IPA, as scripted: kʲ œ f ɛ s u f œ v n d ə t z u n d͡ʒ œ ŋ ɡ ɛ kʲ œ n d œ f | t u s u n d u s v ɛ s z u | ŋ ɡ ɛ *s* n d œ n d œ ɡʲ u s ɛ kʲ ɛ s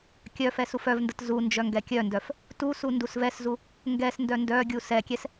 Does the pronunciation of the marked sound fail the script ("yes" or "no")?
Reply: no